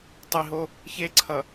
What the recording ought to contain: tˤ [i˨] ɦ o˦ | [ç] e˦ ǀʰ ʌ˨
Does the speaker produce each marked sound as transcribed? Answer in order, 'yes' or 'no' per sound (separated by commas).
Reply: yes, yes